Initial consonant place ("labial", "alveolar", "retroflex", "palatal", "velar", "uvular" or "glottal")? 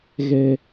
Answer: velar